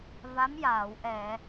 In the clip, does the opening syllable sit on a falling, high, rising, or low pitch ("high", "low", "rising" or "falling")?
rising